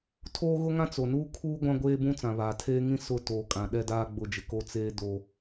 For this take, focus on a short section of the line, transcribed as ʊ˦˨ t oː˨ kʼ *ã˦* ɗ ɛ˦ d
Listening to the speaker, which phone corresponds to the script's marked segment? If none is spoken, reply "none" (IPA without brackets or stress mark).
ã˨